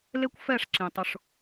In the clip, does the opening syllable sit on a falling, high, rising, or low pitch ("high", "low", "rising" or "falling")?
high